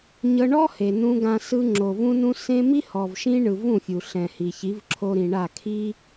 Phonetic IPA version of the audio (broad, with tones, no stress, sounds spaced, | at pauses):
ɲ ɤ˧ ɳ ɔ˦ h e˨ n ũ˧ ɡ ã˧ s ɯ˧ ŋ͡ǁ o˨ v ũ˧ n ũ˧ s ẽ˦ m i˦ h ɔ˨ v ʃ ĩ˦ ɳ ɯ˨ v ũ˦˨ fʲ u˨ ɬ ɛ̃˨ h i˨ ç i˨˦ v ǁʰ o˧ ɾ ĩ˨ ɳ a˦˨ kʰ i˦